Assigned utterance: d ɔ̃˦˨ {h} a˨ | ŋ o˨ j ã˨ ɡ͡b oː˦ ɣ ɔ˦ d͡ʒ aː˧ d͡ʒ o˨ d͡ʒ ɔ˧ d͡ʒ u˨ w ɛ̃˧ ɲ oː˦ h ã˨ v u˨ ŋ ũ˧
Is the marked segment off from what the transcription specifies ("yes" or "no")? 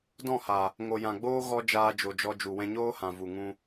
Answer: no